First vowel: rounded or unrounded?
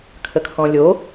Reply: unrounded